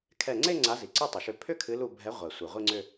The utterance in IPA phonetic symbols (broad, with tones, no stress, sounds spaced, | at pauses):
kʰ ɛ˧˩ ŋ͡ǀ e˥˧ ŋ͡ǀ a˨˦ z i˩ ǀ i˥˧ tˤ ə˩ ʃ ʏ˧˩ pʰ ʏ˥˧ kʰ ɨ˨˦ l u˧˩ bʱ ɛ˨˦ ʁʷ ɛ˩ sʷ ɨ˩ ʁʷ i˥˧ ŋ͡ǀ ʏ˥˧